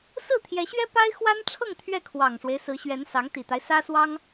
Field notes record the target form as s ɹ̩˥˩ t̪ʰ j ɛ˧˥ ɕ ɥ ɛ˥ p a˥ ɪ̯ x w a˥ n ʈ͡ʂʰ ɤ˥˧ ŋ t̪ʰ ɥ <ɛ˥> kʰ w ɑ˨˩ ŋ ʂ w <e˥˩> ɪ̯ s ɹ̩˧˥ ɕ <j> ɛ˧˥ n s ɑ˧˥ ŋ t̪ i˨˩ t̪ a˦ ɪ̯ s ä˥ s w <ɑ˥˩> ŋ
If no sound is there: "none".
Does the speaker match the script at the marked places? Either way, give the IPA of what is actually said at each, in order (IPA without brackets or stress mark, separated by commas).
ɛ˥˩, e˦, ɥ, ɑ˥